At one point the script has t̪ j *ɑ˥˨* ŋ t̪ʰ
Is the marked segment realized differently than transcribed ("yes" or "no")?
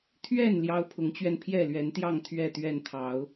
no